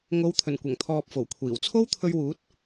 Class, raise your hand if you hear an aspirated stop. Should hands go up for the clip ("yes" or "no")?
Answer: yes